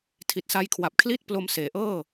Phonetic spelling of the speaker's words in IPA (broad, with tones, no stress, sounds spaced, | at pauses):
tʰ i˨˩ t̚ s a˧ j kʰ w a˨˩ p̚ kʰ l i˥˩ t̚ p l o˧ m s eː˩˦ ʔ ɤː˥˩